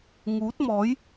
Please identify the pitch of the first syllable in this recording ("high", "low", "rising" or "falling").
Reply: rising